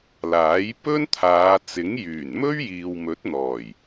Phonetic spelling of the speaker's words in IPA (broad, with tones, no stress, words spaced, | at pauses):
laː˨˥jpɵ˥nt̪ʰaː˨˧ t͡sɪ˨˥ŋjyː˨˩n mɵ˥ɥjiː˨wmɵ˨˥t̚ n̪ɔː˨˩j